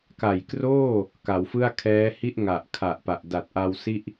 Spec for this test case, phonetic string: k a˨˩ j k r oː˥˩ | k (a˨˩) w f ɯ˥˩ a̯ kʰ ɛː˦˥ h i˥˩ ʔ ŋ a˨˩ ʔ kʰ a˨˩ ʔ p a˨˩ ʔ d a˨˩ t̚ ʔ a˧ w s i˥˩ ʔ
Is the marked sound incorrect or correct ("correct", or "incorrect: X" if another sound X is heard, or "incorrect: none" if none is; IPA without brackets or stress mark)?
incorrect: a˩˦